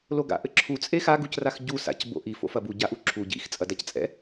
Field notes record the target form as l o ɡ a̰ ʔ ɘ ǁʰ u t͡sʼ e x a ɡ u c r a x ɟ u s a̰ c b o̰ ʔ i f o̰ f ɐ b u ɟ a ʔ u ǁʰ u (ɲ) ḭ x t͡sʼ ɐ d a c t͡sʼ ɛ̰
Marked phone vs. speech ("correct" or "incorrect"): incorrect